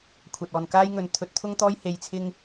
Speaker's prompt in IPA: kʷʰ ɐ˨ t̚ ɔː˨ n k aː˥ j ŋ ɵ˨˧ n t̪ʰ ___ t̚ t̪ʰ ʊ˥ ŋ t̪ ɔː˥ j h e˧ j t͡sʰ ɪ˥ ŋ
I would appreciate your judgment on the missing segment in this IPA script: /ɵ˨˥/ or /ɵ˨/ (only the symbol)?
ɵ˨˥